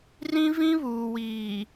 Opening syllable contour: high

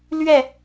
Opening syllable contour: falling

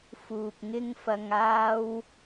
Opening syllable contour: low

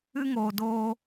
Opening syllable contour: high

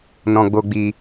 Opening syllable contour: low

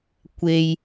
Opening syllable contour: low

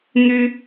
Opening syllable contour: high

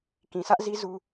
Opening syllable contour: low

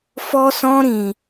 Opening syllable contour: high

